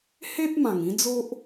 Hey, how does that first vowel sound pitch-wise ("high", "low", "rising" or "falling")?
high